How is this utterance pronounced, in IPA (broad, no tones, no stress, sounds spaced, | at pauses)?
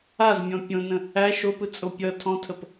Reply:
a z mʲ ɔ̃ pʲ õ n ə̃ | æ ʃ o p ɯ t͡sʼ o pʲ ʌ tʰ ɔ̃ tʰ ə p